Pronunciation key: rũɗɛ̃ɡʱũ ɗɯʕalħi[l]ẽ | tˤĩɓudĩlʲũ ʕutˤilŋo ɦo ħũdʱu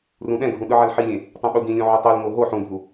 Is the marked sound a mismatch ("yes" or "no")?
yes